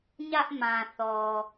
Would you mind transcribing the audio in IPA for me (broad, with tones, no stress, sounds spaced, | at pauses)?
ɲ ä˦ ʔ m ã˨ θ ɔ˨